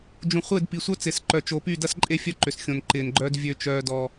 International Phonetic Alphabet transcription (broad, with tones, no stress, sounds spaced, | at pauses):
d͡ʒ ũ˨ χʷ ɪː˦˨ d p i˨ sʷ œ˦ t͡s ɪː˨ s ǃ œ˨ t͡ʃ o˨ p y˦˨ d ɐ˦ s ǃʼ e˦ fʲ œ˦ ǃ ʏ˨ s xʲ õ˨ n ǃ ɪː˨ n ɡ͡ǃ œː˦ d vʲ ø˦ t͡ʃ œː˦ d ɔ˦